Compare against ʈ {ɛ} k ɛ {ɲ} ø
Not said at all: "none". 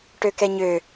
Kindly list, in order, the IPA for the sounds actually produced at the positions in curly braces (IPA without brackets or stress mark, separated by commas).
ø, ɲ